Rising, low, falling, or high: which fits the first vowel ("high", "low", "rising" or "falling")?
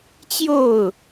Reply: falling